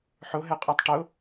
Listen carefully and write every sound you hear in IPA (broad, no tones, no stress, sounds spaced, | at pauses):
ħ ʊ ɦ ɛ qʼ ə˞ tˤ ʈ ʊ